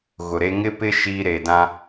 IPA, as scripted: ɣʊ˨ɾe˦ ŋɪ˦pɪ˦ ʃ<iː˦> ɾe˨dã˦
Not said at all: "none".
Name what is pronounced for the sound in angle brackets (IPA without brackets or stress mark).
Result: iː˦